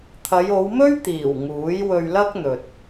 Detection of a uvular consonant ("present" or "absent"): absent